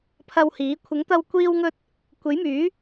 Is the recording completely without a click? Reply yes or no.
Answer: yes